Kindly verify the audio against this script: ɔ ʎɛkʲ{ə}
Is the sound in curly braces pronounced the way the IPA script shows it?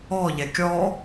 no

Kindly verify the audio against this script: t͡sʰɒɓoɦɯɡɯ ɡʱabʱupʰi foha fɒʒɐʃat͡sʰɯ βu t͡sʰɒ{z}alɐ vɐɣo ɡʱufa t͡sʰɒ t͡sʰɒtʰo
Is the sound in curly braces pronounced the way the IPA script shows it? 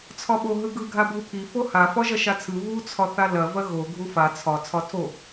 no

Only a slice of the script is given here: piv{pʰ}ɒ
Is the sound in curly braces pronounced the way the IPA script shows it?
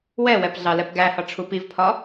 yes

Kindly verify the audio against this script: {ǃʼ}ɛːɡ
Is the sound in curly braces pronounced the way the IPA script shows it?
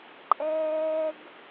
yes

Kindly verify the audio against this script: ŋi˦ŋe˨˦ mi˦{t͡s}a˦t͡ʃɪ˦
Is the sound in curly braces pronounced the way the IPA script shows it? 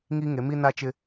no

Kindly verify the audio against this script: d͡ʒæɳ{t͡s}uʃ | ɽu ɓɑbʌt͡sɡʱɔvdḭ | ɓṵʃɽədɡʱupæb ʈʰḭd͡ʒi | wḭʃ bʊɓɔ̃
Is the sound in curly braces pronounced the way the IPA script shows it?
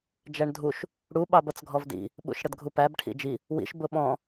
no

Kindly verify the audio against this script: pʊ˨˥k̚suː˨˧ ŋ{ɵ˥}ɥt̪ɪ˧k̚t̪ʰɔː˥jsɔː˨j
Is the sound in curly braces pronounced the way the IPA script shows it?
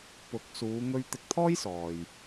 no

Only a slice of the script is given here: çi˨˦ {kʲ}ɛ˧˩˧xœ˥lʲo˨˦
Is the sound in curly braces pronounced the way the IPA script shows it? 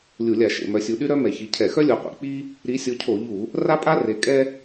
no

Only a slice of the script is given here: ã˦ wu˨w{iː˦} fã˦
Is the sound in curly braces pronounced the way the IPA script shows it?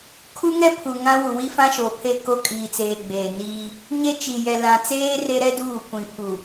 no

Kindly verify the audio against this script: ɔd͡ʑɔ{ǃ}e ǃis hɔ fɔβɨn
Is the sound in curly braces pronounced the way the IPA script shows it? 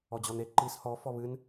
no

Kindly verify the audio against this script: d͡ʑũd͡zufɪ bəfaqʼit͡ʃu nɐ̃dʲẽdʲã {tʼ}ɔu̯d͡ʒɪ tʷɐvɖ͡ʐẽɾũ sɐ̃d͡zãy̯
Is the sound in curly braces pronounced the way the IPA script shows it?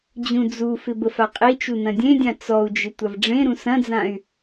no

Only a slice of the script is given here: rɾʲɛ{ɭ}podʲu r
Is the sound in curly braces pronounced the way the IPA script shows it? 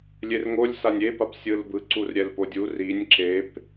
no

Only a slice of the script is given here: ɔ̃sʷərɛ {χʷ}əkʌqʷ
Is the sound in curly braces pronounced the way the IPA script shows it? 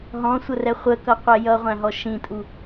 yes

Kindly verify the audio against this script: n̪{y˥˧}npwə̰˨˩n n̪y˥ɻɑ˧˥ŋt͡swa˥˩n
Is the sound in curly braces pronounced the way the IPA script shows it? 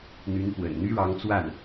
no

